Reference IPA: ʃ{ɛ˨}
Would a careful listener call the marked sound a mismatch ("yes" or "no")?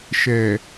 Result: no